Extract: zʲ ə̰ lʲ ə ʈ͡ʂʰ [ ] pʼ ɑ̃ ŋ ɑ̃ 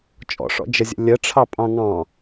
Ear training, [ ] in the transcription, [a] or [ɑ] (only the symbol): ɑ